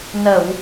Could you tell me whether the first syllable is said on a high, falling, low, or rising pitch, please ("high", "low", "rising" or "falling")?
low